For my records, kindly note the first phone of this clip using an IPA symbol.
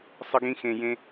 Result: sˤ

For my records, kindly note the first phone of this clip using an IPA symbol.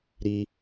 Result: ɾ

